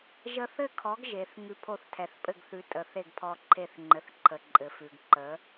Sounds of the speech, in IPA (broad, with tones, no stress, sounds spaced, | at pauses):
ʒ ə˧ θ ɘ˥˩ kʰ ɔ˩˥ ɡ ʒ e˩ θ ŋ ʉ˧ pʰ o˥˩ θ tʰ ɛ˩ θ pʼ ɘ˥˩ ɡ θ ʉ˩˥ tʼ ə˩ θ e˥˩ ɡ pʰ ɔ˧ ǃʰ e˥˩ θ ŋ͡ǃ ɘ˩ θ ǃʰ ə˩ ǃʼ ɘ˩ f ʉ˩ ɡ ǃ ə˩˥